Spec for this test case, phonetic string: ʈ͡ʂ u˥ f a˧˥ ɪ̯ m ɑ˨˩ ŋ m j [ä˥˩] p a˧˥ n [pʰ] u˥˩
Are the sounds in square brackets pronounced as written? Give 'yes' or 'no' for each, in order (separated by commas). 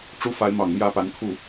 no, no